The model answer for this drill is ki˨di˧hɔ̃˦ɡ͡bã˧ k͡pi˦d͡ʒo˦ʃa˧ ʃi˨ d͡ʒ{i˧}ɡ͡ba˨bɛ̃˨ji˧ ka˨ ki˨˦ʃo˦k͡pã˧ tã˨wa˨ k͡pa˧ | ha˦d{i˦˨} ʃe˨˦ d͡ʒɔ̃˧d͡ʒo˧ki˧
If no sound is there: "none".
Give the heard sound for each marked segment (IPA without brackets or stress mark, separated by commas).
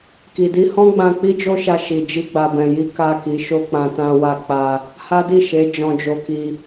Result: i˧, i˦˨